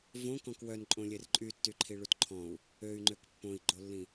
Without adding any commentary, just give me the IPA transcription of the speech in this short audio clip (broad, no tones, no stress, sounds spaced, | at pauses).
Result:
v õ k ɔ̃ k w œ n ǃʼ õ lʲ e r ǃʼ y tː y ǃʰ i ɭ u t ǃʰ ɔ̃ u̯ | ø y̯ ŋ͡ǃ ø k pː õ i̯ ɡ͡ǃ o lː ĩ